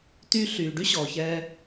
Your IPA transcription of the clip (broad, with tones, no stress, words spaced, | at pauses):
tyː˧ ɬyː˨ɖy˦ ɕɔː˨çɛː˦